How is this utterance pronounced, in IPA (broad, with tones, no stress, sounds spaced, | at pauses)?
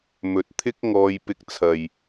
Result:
m ɵ˨ t̚ t̪ʰ ɪ˥ k̚ ŋ ɔː˧ j p ɪ˧ k̚ t͡sʰ ɐ˨ j